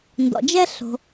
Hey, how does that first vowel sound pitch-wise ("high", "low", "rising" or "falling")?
low